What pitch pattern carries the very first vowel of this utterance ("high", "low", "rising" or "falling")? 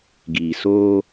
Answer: low